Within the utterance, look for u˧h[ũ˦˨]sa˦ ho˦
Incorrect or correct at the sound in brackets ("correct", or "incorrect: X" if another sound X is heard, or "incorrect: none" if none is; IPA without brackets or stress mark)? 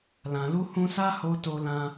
incorrect: ũ˧